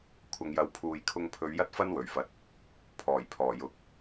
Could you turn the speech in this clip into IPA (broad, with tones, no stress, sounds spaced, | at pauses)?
kʷʰ ɐ˨ ŋ j ɐ˨˥ w pʰ uː˨ j kʰ ʊ˧ ŋ pʰ ɵ˨˧ ɥ j ɐ˥ t̚ f ɐ˥ n w ɵ˨˩ ɥ f ɐ˨˥ t̚ | pʰ ɔː˨˩ j pʰ ɔː˨˩ j ʊ˨ k̚